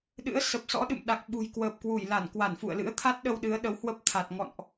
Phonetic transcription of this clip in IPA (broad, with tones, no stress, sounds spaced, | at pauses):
ɗ ɨ̰˧˥ ə̯ s ə˨˩ p̚ s ɔ̰˧˥ ɗ ɨ̰˧˨ m ɗ a˨˩ k̚ ɓ ṳ˨˩ j k w əː˨˩ p̚ k w u˧˩ j l a˧˩ n k w a˧˩ n f ṵ˧˨ ə̯ l ɨ̰˧˥ ə̯ t̪ʰ a˦˥ t̚ ɗ ə˧ w ɗ ɨ˨˦ ə̯ ɗ ə˨˦ w h w ə˦˥ p̚ t̪ʰ a˨˩ t̚ ŋ ɔ̰˧˨ n ʔ